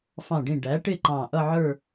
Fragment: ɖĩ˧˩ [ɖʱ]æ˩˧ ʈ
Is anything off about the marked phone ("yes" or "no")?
yes